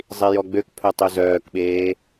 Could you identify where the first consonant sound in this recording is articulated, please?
alveolar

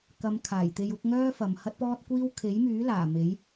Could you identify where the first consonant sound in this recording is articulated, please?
velar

